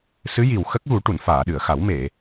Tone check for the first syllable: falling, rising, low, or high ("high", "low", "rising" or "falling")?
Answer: rising